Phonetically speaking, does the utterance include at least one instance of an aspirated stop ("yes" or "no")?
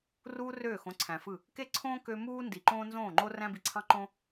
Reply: yes